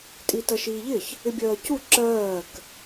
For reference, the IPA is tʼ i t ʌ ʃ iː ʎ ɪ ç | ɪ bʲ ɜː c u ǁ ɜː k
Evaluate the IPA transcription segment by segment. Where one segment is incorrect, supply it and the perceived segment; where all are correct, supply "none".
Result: none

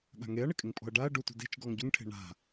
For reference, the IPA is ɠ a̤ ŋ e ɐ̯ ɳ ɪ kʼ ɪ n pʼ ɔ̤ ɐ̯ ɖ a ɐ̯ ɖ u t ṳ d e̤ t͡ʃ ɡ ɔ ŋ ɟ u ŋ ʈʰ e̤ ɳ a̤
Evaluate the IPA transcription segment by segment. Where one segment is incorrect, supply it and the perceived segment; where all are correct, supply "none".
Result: n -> ŋ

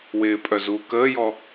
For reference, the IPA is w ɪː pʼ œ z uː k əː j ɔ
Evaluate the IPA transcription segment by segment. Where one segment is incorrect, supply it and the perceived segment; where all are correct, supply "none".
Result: none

